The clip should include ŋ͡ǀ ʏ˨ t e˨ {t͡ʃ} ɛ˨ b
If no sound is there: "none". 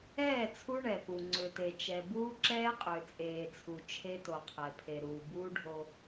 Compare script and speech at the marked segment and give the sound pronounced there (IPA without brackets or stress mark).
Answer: t͡ʃ